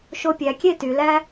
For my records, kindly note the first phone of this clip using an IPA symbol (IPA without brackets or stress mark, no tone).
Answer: ʃ